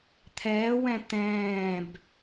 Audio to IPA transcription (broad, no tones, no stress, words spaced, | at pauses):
t̪ʰɛːwɛ̃ t̪ɛ̃ːb